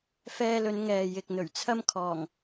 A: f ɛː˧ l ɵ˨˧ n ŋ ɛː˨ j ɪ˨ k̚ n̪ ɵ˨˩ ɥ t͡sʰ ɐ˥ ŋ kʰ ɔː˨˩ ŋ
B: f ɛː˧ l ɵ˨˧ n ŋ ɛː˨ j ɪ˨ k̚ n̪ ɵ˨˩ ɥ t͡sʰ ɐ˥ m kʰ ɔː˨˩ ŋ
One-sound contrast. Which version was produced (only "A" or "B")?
B